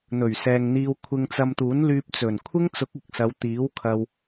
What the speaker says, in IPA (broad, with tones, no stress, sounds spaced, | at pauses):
n̪ ɵ˨˩ ɥ s ɛː˨ ŋ n̪ iː˧ w kʷʰ ɪ˧ ŋ t͡s ɐ˧ m t̪ uː˨˥ n l yː˧ p̚ t͡s ɵ˨˩ n kʷʰ ɪ˥ ŋ t͡s ʊ˨˥ k̚ ɪ˨ k̚ s ɐ˨˧ w t̪ iː˨˥ w kʰ ɐ˧ w